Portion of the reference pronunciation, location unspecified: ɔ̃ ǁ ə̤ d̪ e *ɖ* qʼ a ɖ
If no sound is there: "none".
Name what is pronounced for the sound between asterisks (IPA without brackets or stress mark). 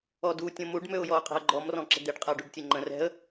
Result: ɖ